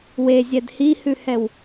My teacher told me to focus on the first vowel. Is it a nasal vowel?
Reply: no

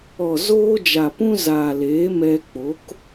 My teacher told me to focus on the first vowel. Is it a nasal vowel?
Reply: no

